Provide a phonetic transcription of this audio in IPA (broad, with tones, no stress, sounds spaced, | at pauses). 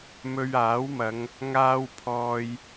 m ɵ˧ ɥ aː˨˥ w m ɐ˨˧ ŋ | ŋ aː˧ w pʰ ɔː˨ j